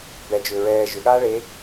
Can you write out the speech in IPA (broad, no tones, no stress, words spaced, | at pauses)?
bɛd͡ʒʏː ɹɛː ʒʏɠaː ɭe